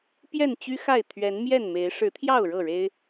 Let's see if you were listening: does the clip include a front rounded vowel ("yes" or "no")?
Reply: yes